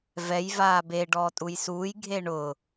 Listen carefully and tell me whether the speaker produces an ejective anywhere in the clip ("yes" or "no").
yes